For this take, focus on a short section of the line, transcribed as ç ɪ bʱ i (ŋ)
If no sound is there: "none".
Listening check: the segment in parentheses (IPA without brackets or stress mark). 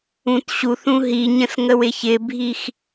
x